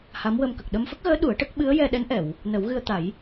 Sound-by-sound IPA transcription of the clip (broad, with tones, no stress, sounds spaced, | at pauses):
h a˧˥ m w ə˧ m k ə˨˩ k̚ ɗ ə˧ m f ə˦˥ k̚ ɣ əː˧˥ ɗ u˨˩˦ ə̯ ʈ ə˦˥ k̚ ɓ ɨ˧˥ ə̯ j ɛ˧ ɗ ɛ˧˥ n ʔ ɛ˨˩˨ w | n ə˨˩˦ w ɣ ɨ˧ ə̯ t̪ a˨˩˦ j